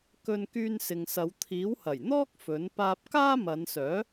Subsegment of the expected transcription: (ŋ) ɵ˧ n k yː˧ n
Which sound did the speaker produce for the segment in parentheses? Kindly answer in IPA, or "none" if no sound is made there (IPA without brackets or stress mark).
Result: k